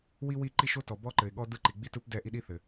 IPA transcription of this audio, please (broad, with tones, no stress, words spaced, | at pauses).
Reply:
wi˥wi˥˧ǃi˥˧ʃo˥ tɔ˨ bɔ˥ǃɘ˨ɪ̯ɠɔ˥ dɯ˥˧ǃi˨ɡ͡bi˥tɯ˥p dɛ˥˧ ʔi˥ɗi˥θɘ˨